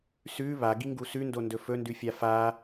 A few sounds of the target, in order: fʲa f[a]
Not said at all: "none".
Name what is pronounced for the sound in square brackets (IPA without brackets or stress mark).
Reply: a